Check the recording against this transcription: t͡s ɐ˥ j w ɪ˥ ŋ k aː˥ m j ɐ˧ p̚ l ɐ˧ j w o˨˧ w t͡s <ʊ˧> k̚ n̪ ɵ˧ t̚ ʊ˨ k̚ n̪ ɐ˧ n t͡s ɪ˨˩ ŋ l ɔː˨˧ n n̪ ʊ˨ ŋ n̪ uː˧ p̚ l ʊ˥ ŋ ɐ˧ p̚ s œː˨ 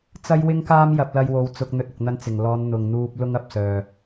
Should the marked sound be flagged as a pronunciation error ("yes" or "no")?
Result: no